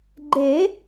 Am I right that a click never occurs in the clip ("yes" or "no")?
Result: no